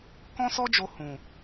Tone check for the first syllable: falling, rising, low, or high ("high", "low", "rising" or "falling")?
high